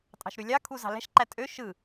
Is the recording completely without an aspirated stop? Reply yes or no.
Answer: no